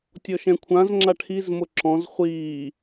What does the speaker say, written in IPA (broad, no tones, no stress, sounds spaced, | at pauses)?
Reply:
tʲ ɔ ʃ ɛ̃ kʷʰ ã z ŋ͡ǁ a ʈʰ i z m ʊ ǁ ɔ̃ z χʷ iː